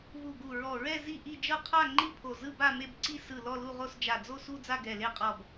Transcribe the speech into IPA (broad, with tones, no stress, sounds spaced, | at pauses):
v u˧˩ ɡ u˧˩ ɹ ɔ˧˩ ɹ ɛ˥˧ z i˥˧ ʔ i˥˧ d͡ʒ ɤ˥˧ qʰ a˥˧ ŋ͡ǃ i˥˧ pʰ o˧˩ z ɯ˥˧ b a˥˧ m e˥˧ b ǀ i˥˧ s ɯ˧˩ l ɔ˥˧ l u˥˧ ʁ o˥˧ s d͡ʒ a˧˩ d͡z o˥˧ s u˥˧ d͡z a˥˧ ɡ ɛ˧˩ l e˥˧ qʼ ɔ˧˩ b